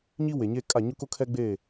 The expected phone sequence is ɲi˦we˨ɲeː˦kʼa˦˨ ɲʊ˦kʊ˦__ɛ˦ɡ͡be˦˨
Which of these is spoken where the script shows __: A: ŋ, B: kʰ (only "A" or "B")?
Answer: B